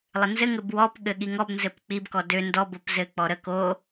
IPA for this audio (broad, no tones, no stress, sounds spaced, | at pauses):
lˠ ɘ n z ɘ ŋ ɘ b w ɔ p ɠ ɘ ɠ i ŋ ɔ b n z ɘ p k͡p i b k ɔ d ø n d ɔ b o p z ɘ k͡p ɔ ɾ ə k o